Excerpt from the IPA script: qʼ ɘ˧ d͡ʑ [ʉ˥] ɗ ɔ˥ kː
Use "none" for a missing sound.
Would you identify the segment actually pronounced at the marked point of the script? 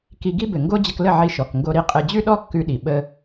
ʉ˥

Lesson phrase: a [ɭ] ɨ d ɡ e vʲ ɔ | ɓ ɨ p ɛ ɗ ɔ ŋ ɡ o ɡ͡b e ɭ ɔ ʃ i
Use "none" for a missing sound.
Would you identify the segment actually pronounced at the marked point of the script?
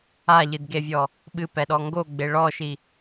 ʎ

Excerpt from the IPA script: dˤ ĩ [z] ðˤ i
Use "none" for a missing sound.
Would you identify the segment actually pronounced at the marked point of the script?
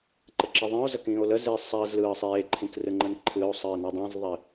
z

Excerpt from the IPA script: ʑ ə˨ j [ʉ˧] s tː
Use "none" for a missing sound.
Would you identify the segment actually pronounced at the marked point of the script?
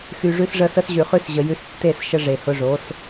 ʉ˧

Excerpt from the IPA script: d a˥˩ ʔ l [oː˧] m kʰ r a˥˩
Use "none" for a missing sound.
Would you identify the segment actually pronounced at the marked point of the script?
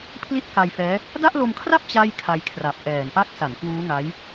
o˧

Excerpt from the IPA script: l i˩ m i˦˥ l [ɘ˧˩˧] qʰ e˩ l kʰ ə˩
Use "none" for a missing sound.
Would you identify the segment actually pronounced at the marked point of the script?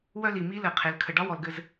ɘ˧˩˧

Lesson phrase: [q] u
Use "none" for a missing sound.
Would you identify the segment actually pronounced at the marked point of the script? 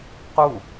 q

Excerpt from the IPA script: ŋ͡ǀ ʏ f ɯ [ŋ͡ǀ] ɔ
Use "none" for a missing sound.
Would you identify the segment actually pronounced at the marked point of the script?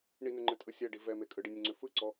ǀ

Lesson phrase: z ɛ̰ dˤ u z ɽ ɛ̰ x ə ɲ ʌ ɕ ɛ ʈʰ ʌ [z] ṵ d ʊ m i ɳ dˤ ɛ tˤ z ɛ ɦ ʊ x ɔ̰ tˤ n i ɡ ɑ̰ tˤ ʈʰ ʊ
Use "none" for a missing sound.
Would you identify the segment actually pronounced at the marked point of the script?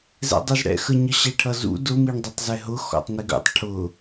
z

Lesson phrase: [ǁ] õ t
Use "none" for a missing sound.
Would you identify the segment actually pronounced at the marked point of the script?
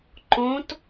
ǃ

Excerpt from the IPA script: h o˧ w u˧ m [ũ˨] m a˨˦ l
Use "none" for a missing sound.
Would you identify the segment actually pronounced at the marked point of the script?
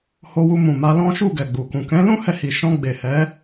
ũ˨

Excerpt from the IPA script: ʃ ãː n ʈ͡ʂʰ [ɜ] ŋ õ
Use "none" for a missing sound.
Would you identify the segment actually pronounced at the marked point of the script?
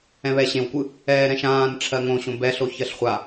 ɜ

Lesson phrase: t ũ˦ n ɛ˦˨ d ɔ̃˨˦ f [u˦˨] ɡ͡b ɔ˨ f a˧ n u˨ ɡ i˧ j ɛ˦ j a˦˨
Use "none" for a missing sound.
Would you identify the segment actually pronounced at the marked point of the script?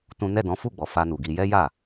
u˦˨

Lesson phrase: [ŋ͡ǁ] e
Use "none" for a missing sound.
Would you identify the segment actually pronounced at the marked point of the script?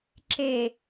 ǁ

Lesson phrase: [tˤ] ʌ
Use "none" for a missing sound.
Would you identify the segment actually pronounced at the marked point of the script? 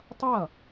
tˤ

